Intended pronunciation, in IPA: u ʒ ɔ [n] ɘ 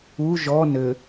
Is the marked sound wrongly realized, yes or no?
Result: no